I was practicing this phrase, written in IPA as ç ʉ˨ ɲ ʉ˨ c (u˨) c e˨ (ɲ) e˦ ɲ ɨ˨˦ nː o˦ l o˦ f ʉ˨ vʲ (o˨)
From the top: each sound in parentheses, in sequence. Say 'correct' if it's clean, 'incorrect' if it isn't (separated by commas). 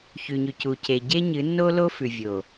correct, incorrect, correct